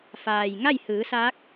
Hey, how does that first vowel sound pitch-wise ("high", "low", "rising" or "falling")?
low